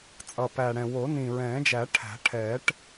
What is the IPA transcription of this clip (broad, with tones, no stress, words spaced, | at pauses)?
t͡sʼʌ˨˩pæ˨˩ɽɛ̃˨˩ wo˨˩˦nĩ˨˩ɹɛ̃ː˨˩˦d͡ʒæ˨˩˦ ʈʰæ̤˨˩˦ʈʰɛː˨˩˦ʈ